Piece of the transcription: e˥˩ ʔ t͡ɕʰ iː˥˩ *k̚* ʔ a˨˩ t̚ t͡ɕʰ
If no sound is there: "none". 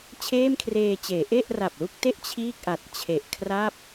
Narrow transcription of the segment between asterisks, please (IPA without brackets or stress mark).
k̚